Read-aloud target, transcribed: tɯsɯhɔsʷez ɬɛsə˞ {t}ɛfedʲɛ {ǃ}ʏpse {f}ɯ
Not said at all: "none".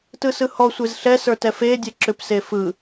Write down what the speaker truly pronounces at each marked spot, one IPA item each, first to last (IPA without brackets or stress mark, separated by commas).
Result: t, ǁ, f